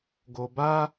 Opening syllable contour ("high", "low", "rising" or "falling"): low